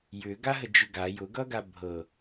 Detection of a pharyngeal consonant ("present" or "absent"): absent